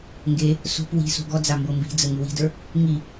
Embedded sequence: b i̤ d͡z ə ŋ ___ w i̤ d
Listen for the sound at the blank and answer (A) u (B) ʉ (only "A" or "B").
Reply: B